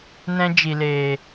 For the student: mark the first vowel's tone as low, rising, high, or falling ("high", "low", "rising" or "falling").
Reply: high